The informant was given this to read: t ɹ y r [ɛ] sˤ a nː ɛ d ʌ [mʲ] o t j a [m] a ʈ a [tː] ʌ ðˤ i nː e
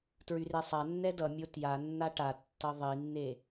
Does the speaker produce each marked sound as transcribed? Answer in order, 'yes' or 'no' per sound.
no, yes, no, yes

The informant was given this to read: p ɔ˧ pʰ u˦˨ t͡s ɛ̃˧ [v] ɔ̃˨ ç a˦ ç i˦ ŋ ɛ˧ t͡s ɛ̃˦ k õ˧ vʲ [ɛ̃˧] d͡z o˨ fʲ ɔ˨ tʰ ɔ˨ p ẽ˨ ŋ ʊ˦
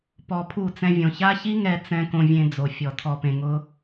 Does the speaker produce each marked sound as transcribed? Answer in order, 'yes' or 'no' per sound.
no, no

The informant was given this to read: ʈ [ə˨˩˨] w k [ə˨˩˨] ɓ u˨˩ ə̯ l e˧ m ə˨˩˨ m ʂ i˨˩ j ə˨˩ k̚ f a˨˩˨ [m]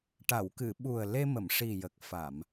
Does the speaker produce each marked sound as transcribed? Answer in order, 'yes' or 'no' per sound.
no, no, yes

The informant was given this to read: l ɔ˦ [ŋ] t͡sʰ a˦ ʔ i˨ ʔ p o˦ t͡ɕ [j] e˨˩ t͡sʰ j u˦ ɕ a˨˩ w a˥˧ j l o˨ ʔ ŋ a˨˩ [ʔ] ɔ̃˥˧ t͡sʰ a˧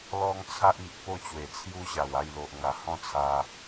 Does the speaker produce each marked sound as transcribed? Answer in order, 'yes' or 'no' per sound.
yes, no, no

